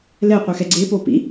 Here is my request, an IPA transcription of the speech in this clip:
l ɛ qʷ i x ɛ ɡ͡ǀ e p o p ḭ

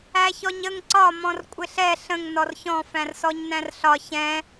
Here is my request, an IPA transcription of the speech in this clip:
æ ç ɔ ɲ ə ŋ ǀ ɒ m ɔ̃ r kʷʼ ɪ ɬ ɛ ɬ ə̃ ŋ n ɔ r ç ɔ̃ f æ̃ r s ɔ ɲ n æ̃ r ɬ ɒ ç ɛ̃

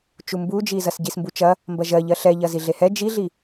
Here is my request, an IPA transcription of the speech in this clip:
t͡ʃ u m b u d͡ʒ i z ɐ s ɟ i s m b u t͡ʃ ɐ | m b ɐ ʒ ɜ ʎ ɜ ɬ ɛ ʎ ɐ z i ɮ e h ɛ d͡ʒ i ɮ i

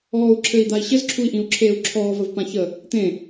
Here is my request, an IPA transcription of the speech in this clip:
ɔː u̯ ǁʰ ɘ i̯ d̪ a i̯ ɕ ɘ z ǁʰ u i̯ ʔ ĩ u̯ ǁʰ eː u̯ ǁʰ ɔː v ə v p ã ç ə | t̪ ẽ

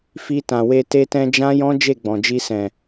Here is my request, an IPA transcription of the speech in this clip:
f i˧ t ã˨ w e˧ t e˧ t ɛ̃˧ d͡ʒ ã˦ j ɔ̃˦ d͡ʒ e˦˨ ɡ͡b ɔ̃˨ d͡ʒ i˧ s ɛ̃˨

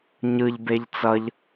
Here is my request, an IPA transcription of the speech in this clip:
ɲ ɯ ʎ b e ʎ t͡s ʌ ʎ

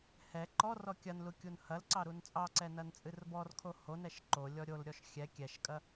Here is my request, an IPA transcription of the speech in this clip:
h ɛ ǃ ɔ r ɔ kʲ ɐ n l u kʲ u n h ɐ l ǀ ɑ ɾ u n t͡sʼ ɑ ǀ ɛ n ɐ n t͡sʼ ɨ r b ɔ r kʰ o h o n ɛ ʃ ǃ o lʲ ɔ ɾʲ o l ɾʲ ɔ ʃ xʲ ɛ kʲ ɛ ʃ kʼ ɐ

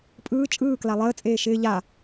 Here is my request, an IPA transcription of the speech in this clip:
pʼ ɯː t͡ʃʼ ɯː k l a lˠ əː t͡sʼ eː ʃ ɪː ʎ a

